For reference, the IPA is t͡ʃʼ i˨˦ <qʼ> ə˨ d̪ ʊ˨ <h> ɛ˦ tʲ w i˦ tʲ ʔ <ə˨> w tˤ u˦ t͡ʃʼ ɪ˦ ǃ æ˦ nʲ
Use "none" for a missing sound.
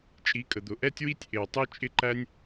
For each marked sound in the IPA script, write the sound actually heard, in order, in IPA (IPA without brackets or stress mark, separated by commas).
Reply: kʼ, ʔ, ɪ˨